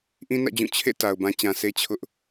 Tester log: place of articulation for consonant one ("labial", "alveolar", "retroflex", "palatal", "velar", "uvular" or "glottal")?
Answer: glottal